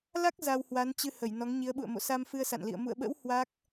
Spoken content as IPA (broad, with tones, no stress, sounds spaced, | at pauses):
l a˦˥ k̚ z a˧ w h w a˨˦ n t͡ɕ ɨ˧ h ə˧˩ j n ɔ˨˦ ŋ ɲ i˨˦ ə̯ ɓ ṵ˧˨ ə̯ m o̰˧˨ s a˧ m f ɨ˧ ə̯ s a̰˧˨ n l ḭ˧˨ ə̯ m ṵ˧˨ ə̯ ɓ ə̰˧˥ w h w a˦˥ k̚